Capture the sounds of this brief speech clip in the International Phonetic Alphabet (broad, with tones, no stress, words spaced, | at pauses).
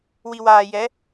wi˨waː˨ jɛ˨˦